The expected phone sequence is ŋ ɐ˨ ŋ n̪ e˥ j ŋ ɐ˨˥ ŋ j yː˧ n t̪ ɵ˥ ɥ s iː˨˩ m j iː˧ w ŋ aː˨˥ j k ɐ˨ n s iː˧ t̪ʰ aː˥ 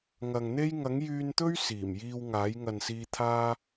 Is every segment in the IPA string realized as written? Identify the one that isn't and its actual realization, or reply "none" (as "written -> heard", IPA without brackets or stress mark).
k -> ŋ